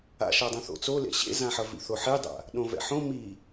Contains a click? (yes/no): no